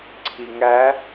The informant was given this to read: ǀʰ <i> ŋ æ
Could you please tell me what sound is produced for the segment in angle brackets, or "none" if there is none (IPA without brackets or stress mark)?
i